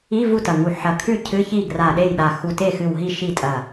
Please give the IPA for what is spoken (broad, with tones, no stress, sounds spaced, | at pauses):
i˧˥˧ v u˥˩ t ɐ˧˩ ŋ u˧˩ ħ ɐ˧˩ kʰ ʉ˥˩ cʰ ɨ˧˥˧ ç i˥˩ ɡ r a˧˩ ɗ e˥˩ j ɗ a˧˩ x u˧˩ t e˥˩ x ɨ˧˩ w ɦ i˥˩ ʃ i˥˩ tʼ ɐ˧˩